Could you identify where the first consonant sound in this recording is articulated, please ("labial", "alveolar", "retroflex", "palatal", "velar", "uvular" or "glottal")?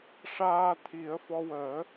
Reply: retroflex